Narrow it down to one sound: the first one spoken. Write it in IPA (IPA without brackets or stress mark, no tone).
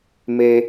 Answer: m